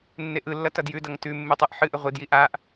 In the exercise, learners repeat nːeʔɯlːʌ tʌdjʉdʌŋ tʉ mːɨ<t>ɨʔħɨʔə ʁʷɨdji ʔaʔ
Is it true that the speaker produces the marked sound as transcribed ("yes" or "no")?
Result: no